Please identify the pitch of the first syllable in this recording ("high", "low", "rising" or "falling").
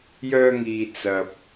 high